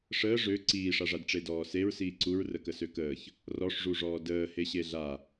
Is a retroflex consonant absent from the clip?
no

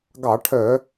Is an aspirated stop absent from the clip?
no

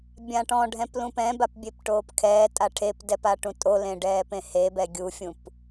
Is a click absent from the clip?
yes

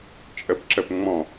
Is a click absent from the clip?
no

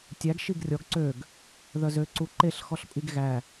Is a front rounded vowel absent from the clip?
no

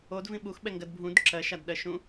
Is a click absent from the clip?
no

